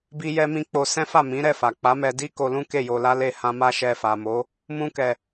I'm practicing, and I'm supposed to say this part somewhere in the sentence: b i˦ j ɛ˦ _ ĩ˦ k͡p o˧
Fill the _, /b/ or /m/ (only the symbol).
m